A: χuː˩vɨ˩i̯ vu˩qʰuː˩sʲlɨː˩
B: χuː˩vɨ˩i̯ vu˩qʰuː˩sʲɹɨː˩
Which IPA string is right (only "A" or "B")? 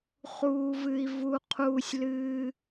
A